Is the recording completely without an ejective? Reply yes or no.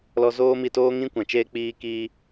yes